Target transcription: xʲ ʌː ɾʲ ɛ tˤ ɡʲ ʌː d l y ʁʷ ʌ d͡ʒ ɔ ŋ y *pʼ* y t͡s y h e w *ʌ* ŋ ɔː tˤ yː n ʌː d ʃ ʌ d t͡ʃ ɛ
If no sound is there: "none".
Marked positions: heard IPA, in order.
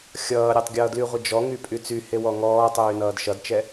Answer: pʼ, ɔ

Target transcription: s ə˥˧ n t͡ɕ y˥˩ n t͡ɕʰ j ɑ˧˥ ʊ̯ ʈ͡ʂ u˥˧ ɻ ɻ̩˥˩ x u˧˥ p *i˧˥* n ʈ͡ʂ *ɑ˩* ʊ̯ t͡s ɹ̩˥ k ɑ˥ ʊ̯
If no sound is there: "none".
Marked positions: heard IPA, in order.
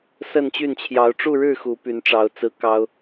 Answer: y˧˥, ɑ˧˥

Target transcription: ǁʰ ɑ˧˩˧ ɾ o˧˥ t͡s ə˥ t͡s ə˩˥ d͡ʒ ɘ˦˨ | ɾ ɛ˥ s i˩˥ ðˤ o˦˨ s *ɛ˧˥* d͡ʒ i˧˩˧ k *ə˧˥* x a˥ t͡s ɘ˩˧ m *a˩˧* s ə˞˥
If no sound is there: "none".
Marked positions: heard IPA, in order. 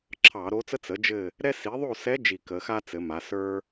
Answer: ɛ˧˥, ə˩˧, a˩˧

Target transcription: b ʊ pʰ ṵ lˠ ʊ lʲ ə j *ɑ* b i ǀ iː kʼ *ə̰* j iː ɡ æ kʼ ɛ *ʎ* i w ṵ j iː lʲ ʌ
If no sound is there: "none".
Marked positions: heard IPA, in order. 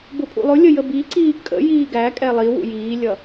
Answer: ə, ə̰, lˠ

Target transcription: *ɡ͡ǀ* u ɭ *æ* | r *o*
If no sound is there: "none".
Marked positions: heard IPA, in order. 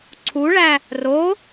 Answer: ǀʰ, æ, o

